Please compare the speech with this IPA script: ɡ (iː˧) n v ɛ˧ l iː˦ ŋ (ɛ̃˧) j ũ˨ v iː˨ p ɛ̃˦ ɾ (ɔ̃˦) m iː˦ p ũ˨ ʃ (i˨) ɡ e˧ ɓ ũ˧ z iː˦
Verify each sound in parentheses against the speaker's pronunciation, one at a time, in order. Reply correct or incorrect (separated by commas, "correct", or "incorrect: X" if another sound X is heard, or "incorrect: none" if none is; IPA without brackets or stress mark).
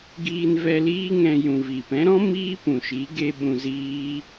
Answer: correct, correct, correct, incorrect: i˨˦